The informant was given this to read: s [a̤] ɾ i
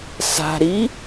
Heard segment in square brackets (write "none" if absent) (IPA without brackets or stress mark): a̤